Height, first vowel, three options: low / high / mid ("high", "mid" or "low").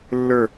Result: mid